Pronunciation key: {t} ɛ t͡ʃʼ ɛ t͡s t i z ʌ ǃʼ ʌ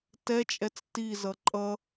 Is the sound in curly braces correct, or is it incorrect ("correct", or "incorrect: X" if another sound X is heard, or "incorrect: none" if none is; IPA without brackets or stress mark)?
correct